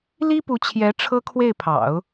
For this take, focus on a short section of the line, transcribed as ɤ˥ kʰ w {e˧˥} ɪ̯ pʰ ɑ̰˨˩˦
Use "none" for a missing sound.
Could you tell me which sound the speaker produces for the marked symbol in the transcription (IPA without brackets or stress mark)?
e˥˩